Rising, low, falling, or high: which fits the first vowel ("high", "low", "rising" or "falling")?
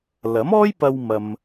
rising